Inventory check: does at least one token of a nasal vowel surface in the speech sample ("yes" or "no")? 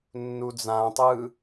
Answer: yes